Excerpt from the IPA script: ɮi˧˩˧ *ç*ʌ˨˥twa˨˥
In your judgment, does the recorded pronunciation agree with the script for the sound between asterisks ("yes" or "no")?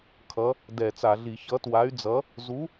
yes